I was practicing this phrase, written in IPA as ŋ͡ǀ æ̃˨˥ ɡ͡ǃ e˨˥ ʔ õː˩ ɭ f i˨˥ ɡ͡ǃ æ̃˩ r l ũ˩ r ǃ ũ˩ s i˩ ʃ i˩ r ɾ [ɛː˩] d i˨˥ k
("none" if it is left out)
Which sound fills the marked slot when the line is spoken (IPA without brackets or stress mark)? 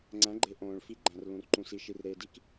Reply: eː˩